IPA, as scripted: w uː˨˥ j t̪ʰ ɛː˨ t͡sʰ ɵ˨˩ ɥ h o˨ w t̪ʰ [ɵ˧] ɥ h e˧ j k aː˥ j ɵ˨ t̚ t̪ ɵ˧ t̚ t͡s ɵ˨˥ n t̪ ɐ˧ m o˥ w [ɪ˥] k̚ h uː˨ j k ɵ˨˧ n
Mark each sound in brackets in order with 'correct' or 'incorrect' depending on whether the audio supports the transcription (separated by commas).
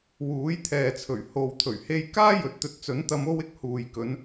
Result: incorrect, correct